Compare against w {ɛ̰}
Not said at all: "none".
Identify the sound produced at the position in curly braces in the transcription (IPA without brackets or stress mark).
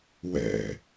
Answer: ɛ̰